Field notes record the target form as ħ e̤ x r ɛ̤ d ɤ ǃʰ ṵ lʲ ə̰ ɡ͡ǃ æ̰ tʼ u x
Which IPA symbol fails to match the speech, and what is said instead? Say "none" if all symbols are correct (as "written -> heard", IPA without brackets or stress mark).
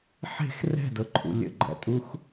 none